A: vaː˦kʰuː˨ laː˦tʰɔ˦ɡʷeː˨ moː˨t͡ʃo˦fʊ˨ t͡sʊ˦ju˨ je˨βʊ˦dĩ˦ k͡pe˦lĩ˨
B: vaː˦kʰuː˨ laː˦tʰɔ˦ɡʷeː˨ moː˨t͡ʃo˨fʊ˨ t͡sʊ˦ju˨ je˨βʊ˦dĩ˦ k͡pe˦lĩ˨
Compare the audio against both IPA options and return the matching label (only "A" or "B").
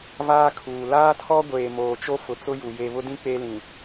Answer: A